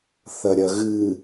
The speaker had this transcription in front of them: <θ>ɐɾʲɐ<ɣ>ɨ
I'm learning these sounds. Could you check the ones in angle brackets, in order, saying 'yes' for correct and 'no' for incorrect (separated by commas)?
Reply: yes, yes